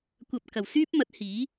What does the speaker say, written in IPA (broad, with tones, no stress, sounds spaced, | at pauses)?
kʷ ɐ˨ p̚ k ɐ˨˩ w s yː˥ p̚ m ɐ˨˥ t̚ h iː˨˥